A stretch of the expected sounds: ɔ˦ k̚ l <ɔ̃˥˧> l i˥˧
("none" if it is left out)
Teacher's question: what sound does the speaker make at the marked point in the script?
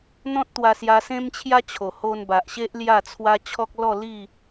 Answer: ɔ˥˧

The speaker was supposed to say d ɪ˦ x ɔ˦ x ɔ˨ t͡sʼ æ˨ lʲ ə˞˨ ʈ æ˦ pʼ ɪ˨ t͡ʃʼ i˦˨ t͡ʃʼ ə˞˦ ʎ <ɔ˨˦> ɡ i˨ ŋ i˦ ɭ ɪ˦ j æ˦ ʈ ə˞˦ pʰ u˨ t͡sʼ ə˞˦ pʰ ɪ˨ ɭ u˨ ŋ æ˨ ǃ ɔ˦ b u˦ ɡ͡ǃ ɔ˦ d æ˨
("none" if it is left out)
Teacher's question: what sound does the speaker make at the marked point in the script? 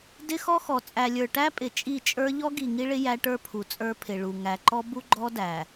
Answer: ɔ˦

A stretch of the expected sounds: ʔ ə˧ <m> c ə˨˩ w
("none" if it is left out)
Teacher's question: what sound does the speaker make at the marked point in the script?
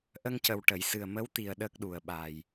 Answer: ŋ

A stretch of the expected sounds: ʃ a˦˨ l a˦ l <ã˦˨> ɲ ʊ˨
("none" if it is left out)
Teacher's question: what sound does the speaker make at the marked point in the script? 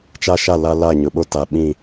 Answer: a˦˨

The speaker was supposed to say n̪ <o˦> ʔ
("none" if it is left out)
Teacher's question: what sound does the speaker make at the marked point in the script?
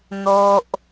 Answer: o˦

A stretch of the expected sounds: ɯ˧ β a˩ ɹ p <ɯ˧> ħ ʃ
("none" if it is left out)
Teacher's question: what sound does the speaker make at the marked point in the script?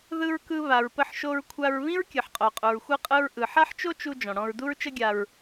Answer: ə˧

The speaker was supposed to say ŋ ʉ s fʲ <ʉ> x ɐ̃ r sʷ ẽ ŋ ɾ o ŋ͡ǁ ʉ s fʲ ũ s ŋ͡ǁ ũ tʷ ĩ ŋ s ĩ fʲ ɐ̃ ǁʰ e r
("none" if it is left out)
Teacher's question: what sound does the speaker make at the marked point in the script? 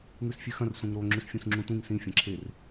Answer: ʉ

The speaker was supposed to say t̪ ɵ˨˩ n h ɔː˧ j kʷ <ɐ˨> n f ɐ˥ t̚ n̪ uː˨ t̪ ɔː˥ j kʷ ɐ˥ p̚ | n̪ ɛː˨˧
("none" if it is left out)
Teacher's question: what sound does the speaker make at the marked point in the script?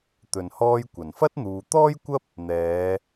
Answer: ɐ˨˩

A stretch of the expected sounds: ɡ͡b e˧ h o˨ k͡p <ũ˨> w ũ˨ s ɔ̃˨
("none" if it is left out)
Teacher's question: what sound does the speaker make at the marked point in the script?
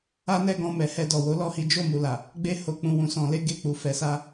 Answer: ũ˨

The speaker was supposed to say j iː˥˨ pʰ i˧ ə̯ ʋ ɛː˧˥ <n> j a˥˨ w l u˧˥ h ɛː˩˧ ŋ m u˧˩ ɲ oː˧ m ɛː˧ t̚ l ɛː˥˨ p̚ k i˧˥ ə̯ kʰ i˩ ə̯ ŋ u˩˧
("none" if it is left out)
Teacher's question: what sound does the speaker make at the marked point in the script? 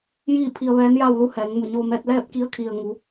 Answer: n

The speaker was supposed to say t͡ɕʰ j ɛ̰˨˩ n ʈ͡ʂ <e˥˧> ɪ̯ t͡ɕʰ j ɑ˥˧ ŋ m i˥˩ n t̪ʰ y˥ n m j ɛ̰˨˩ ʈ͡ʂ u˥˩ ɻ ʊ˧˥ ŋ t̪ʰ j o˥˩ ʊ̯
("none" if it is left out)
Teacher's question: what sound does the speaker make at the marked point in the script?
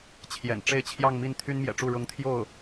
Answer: e˥˧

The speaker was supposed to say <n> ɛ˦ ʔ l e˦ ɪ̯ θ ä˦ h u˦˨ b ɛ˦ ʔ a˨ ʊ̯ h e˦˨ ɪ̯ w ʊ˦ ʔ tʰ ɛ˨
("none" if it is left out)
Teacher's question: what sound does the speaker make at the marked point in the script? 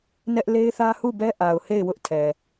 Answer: n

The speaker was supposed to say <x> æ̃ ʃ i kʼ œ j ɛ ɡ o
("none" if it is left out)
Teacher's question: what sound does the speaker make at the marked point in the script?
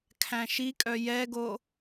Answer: kʰ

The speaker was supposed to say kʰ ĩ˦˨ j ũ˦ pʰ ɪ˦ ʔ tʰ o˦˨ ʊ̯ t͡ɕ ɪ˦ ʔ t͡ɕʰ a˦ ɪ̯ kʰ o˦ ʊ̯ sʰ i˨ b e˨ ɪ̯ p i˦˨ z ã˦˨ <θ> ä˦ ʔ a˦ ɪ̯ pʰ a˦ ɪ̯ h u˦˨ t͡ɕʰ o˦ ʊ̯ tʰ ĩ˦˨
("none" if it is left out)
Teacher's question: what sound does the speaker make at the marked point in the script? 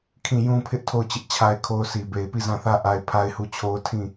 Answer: θ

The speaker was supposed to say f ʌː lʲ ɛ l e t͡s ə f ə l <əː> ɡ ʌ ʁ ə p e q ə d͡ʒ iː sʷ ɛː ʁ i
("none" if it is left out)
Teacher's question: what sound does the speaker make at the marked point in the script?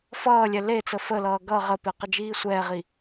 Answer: ʌː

